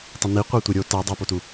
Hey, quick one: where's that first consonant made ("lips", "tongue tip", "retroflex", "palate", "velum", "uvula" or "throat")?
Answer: tongue tip